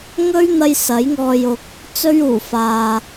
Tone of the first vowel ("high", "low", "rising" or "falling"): high